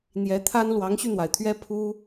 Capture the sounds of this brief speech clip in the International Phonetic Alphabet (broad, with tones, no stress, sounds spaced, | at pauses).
n̪ j ɛ˧˥ t̪ʰ a˥ n l w ɑ˧˥ ŋ ɕ y˧ n̪ w a˩ ɪ̯ t̪ʰ ɥ ɛ˥ pʰ u˥